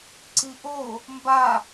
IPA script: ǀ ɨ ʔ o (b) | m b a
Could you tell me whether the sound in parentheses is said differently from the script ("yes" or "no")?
yes